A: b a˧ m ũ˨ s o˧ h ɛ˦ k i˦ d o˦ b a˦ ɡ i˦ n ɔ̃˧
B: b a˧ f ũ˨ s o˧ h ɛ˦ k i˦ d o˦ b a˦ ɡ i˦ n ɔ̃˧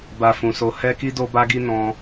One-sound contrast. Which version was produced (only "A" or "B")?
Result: B